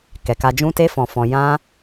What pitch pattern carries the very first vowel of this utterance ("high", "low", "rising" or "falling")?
low